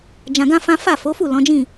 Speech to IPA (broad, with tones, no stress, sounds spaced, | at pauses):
d͡ʒ ã˧ ɡ ã˦ f ã˦ f a˦˨ f o˨˦ f u˦˨ l ɔ̃˨˦ d͡ʒ ĩ˦˨